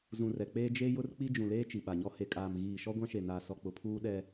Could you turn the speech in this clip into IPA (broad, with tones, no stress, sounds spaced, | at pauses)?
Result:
z ũ˨ r ɛ˨ k͡p eː˦ d͡ʒ e˦ j ʊ˦ r k͡p i˦ d͡ʒ ũ˨ l eː˦ t͡ʃ i˨ ɓ a˨ ɲ ɔ˦ h e˨ kʼ aː˨ m ɣ iː˨ ʃ ɔ˦ ɡʷ ã˦ ʃ e˨ n aː˨ s ɔ˨ k͡p ʊ˨ pʰ uː˦ ɗ ɛ˦